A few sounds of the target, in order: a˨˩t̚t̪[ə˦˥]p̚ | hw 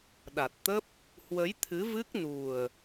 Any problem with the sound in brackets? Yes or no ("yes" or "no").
no